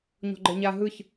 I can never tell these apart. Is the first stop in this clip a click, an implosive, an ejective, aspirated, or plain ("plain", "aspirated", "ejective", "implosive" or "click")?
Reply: click